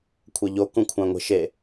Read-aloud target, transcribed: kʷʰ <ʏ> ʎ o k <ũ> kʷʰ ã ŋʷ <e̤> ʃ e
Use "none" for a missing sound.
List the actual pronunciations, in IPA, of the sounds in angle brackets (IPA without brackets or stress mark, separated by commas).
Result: ɛ, ũ, e̤